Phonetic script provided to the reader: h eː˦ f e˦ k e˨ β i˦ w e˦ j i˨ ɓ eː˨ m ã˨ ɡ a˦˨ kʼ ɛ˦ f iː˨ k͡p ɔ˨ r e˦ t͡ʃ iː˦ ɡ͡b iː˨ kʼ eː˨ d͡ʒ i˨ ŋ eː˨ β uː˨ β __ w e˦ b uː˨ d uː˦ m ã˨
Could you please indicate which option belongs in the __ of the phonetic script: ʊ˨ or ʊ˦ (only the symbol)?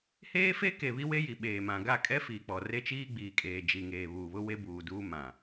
ʊ˦